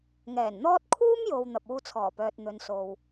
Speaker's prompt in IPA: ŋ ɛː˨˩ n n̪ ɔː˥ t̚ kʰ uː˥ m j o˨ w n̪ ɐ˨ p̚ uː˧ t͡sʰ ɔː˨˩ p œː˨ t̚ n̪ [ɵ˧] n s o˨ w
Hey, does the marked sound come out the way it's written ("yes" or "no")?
no